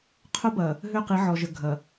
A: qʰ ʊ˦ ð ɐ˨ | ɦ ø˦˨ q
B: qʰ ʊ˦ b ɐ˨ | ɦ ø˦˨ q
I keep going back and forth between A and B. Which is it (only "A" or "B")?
B